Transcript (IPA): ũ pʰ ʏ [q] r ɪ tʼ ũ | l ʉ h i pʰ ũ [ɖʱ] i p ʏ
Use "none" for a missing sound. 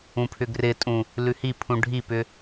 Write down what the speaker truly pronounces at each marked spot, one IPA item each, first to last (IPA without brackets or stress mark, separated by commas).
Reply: ɡ, ɖʱ